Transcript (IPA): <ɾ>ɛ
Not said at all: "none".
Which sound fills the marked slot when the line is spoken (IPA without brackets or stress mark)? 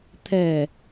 t̪ʰ